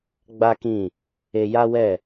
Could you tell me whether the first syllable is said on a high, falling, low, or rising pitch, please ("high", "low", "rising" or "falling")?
high